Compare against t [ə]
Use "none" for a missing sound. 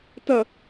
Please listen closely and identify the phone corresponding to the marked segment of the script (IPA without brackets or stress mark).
ɐ